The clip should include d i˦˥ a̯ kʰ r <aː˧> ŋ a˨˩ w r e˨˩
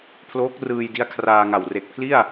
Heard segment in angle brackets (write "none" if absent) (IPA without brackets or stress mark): aː˧